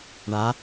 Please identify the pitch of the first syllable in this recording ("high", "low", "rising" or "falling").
rising